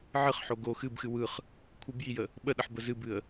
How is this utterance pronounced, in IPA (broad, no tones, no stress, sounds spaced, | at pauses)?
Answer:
ʕ ɨ χ ħ o ɡ o x ɨ b x ɨ w ɯ χ | kʷʰ ɯ b j i j ə | ɓ ə ɗ ə ħ b ə z ɨ b ɨ ə̯